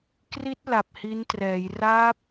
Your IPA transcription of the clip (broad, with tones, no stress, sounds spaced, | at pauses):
k r i˦˥ t̚ l a˨˩ p̚ h i˦˥ n t r ɛː˩˦ j r aː˦˥ p̚